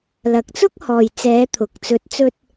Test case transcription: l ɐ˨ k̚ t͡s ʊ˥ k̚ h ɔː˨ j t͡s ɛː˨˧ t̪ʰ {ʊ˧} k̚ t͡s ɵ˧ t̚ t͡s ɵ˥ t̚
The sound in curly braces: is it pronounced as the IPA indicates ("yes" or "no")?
no